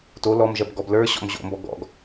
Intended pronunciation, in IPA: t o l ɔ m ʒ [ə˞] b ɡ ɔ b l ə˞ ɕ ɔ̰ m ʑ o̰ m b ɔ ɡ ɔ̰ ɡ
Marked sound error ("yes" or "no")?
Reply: yes